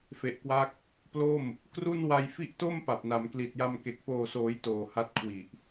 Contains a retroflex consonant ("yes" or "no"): no